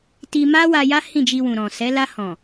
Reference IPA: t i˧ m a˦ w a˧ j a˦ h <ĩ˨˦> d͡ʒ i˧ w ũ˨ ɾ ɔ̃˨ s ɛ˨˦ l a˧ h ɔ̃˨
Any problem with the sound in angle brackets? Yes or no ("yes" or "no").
yes